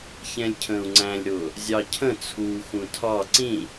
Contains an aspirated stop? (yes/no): yes